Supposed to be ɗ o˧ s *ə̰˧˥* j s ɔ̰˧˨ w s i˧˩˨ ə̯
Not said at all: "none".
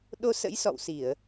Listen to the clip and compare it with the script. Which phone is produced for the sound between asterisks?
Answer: ə̰˧˥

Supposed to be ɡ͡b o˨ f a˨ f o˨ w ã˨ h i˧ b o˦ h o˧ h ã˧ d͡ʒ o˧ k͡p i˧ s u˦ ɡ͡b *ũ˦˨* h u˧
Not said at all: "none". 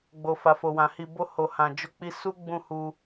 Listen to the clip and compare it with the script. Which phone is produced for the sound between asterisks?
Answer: ũ˦˨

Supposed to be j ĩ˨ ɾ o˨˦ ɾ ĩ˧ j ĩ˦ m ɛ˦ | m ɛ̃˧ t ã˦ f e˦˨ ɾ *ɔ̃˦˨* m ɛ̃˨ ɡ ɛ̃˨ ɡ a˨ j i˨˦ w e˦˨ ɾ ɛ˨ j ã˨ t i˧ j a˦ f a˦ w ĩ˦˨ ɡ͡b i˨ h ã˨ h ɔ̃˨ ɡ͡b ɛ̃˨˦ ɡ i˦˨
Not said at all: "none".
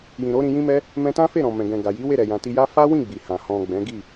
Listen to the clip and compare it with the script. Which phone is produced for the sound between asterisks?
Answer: ɔ̃˨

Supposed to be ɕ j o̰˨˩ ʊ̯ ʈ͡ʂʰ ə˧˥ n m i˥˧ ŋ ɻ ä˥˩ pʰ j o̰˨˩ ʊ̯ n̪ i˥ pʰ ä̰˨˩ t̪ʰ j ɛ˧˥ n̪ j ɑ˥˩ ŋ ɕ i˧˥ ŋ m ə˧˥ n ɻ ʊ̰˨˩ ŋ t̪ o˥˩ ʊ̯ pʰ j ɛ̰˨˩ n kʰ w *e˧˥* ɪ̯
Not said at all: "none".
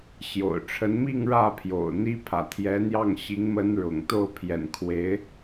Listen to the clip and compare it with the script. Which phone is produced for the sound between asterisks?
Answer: e˧˥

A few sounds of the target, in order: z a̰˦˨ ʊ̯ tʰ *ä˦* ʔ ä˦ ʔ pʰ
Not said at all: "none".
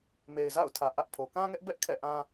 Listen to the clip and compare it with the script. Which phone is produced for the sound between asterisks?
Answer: ä˨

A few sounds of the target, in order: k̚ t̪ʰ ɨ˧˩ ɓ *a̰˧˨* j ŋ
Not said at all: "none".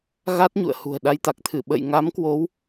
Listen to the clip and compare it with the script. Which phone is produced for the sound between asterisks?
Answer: ə̰˧˨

